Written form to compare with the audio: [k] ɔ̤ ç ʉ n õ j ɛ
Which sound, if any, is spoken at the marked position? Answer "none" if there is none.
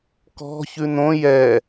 k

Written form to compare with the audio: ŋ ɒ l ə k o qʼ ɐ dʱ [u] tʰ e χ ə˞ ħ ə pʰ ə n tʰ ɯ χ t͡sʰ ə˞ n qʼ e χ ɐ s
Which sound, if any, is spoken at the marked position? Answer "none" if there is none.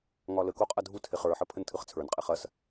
u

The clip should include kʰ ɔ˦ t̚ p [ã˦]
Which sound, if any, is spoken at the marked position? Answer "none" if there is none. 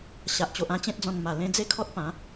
ã˨˦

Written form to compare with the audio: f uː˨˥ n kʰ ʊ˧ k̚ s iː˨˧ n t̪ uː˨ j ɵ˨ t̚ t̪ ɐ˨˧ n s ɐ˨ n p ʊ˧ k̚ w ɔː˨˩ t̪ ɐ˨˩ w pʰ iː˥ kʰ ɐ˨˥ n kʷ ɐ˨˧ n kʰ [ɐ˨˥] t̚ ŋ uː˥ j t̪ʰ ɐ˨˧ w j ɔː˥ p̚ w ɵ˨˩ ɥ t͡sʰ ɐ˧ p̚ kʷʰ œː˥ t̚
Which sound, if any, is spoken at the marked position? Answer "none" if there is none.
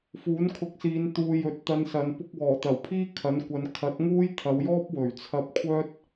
ɐ˨˥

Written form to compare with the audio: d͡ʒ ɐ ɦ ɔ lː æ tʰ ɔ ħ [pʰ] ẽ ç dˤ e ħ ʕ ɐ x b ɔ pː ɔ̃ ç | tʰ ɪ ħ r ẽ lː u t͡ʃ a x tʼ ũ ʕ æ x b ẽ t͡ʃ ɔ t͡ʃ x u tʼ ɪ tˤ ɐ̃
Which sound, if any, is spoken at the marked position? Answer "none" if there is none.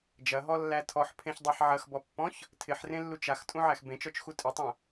pʰ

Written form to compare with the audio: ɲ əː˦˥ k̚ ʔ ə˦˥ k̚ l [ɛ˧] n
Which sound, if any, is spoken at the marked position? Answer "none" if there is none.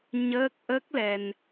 ɛ˧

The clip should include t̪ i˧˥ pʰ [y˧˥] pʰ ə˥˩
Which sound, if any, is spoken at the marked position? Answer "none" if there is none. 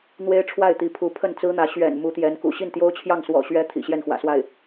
u˧˥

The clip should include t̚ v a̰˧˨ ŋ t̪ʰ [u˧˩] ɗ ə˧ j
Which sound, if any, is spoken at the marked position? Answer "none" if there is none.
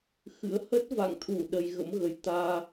u˧˩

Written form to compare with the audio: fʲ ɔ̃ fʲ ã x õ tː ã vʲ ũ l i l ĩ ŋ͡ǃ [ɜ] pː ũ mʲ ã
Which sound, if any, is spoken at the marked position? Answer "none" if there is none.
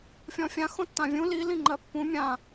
ɜ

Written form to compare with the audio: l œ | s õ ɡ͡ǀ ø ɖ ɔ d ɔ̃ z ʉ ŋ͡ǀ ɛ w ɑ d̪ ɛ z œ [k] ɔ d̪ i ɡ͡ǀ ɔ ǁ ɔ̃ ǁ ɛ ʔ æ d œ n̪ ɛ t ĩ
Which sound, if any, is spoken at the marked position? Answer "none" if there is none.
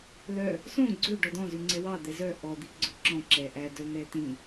ʔ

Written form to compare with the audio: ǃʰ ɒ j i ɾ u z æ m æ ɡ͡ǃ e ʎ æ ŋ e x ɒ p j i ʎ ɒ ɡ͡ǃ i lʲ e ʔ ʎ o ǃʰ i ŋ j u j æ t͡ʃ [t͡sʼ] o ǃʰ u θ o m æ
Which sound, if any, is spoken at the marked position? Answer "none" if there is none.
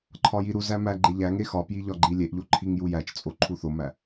t͡sʼ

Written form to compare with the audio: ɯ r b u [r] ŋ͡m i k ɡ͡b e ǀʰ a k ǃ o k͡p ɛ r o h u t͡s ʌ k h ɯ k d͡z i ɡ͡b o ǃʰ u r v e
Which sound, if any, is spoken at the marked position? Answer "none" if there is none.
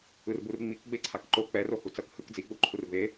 r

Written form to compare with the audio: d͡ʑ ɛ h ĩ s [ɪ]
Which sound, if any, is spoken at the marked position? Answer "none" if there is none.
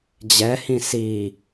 i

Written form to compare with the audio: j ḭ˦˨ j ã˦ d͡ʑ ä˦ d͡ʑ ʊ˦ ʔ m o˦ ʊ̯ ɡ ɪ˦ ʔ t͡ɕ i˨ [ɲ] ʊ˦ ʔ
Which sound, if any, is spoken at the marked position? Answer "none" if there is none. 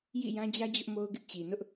n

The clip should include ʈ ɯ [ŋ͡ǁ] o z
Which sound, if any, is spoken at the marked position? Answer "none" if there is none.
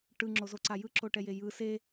ŋ͡ǁ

